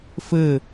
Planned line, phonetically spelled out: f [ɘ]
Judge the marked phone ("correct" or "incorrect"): correct